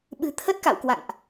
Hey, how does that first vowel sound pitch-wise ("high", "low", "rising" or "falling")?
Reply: low